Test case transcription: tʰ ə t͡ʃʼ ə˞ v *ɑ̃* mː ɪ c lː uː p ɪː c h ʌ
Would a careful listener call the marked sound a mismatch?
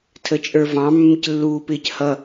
no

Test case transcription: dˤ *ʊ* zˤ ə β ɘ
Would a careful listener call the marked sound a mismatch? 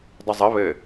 yes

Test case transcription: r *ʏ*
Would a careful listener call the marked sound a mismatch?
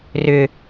no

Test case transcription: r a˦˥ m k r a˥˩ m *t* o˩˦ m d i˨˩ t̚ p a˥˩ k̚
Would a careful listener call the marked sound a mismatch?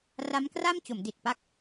yes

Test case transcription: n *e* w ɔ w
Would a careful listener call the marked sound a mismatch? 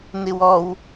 yes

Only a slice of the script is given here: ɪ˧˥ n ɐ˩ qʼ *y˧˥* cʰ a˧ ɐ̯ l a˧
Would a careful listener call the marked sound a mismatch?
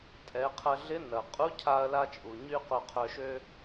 yes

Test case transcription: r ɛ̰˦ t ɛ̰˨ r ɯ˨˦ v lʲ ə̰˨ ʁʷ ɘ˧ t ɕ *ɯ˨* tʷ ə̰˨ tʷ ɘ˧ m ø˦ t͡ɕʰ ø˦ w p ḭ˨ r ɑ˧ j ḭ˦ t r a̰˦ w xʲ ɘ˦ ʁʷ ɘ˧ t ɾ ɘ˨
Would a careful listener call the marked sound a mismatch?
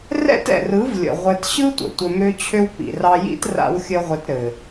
yes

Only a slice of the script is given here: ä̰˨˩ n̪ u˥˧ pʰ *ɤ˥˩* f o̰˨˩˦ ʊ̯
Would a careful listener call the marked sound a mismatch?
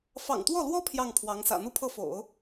no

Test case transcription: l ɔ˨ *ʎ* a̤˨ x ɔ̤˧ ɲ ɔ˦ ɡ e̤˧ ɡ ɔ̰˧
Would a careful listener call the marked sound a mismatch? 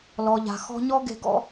no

